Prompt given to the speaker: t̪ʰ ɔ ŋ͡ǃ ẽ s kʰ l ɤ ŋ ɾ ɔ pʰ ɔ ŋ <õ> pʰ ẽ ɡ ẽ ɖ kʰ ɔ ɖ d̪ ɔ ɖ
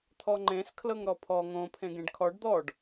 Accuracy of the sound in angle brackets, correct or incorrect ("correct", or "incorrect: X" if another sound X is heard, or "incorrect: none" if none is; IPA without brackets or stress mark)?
correct